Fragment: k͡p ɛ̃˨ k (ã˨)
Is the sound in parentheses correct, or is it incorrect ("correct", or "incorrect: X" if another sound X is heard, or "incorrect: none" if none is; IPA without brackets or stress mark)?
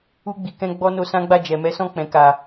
incorrect: a˨